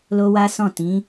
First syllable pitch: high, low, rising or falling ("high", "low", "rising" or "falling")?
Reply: high